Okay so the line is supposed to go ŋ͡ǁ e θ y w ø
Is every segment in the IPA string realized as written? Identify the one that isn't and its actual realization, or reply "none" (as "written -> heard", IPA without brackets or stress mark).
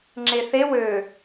y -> e